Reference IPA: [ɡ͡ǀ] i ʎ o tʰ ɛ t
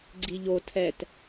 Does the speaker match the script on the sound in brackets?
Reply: yes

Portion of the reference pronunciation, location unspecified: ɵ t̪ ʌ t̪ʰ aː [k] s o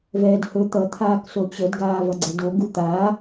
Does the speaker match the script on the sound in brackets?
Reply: yes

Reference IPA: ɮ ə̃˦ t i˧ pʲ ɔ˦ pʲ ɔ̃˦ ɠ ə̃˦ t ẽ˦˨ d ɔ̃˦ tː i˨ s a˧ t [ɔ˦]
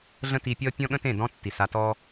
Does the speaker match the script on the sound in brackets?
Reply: yes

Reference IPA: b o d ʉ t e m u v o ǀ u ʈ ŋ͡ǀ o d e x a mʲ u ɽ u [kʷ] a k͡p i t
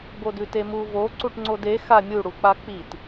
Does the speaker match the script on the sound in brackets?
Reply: no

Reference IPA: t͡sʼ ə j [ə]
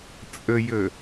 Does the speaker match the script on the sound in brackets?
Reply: yes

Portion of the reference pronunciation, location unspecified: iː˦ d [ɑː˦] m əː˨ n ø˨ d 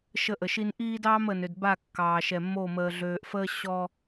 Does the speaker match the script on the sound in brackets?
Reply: yes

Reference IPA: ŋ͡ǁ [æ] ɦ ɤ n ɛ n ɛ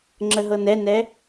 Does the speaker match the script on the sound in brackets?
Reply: no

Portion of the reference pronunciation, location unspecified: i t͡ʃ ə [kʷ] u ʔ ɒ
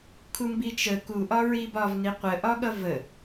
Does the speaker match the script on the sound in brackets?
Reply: no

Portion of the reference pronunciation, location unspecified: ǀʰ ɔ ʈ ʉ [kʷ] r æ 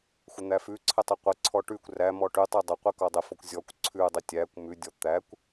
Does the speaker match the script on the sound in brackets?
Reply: yes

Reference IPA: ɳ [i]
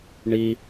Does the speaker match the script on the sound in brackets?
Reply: yes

